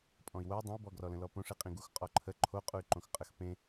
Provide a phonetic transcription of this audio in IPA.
pʼ ɔ̃ i̯ w o y̯ dˤ ə̃ u̯ b ɔ ɡ r ɔ l ə̃ l ɔ p õ ʂ i qʼ ĩ ɡ u x qʼ ɔ ǃʰ ə ǃʰ o qʼ u y̯ ǃ õ x qʼ ə x p ẽ

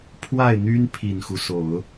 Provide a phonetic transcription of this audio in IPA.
pʰ w a˥˩ ɪ̯ n̪ y˥ n pʰ i˨˩ n x u˦ s o˨˩˦ ʊ̯

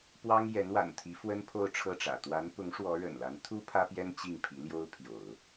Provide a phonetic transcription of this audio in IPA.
p w ɑ˥ ŋ j ɛ˧˥ n w a̰˨˩ n t̪ʰ i˧˥ f w ə˥ n pʰ o˥˧ ʊ̯ ʈ͡ʂʰ ɤ˥˩ ʈ͡ʂ ä̰˨˩ t̪ w a˧˥ n p ʊ˧˥ ŋ ʂ w ɔ˧˥ ɻ ə̰˨˩ n l a˧˥ n t̪ʰ u˥ pʰ ä˥ p j ɛ˥ n t͡ɕ i˥˩ ŋ pʰ i˧˥ l j o˥ ʊ̯ pʰ j o̰˨˩˦ ʊ̯

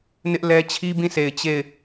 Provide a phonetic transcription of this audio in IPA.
n ɪ˦ ʔ l ɛ˦ t͡ɕʰ i˦ b ĩ˦˨ s e˨ ɪ̯ t͡ɕ e˦˨ ɪ̯

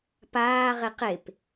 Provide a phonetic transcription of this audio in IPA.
p aː ʁ e q e p

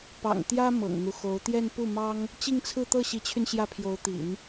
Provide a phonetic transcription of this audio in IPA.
p ɑ̰˨˩ ŋ t̪ j ä˥ m ɤ̰˨˩ ŋ n̪ u˦ x o˧˥ ʊ̯ t̪ j ɛ˥˧ n p u˥˩ m ɑ˥ ŋ | t͡ɕ i˥˧ ŋ t͡sʰ ɹ̩˥˧ t̪ ɤ˥˩ ɕ i˧˥ t͡ɕʰ y˧ n ɕ j ä˥˩ pʰ j o˧˥ ʊ̯ t̪ ḭ˨˩˦ n

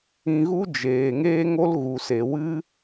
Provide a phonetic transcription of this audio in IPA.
ĩ˧ ɣ u˦ d͡ʒ eː˨ ŋ eː˦ ŋ o˦ l ɣ u˨ s e˨ w ɨ˦

